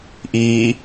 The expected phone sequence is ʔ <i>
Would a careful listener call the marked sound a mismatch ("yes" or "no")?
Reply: yes